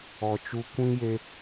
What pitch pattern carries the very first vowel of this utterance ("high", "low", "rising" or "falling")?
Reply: low